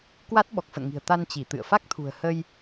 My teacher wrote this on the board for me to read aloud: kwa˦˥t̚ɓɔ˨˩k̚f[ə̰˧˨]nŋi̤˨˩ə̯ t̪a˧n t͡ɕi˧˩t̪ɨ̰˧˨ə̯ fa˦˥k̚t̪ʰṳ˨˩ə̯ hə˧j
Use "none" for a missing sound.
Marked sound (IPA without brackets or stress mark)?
ə̰˧˨